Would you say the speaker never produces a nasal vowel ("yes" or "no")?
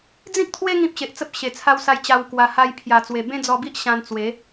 no